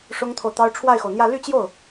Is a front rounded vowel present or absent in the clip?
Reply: present